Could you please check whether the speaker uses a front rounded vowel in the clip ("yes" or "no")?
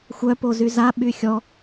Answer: yes